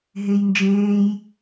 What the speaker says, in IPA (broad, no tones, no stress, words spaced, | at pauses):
ɦejnd͡ʒẽːj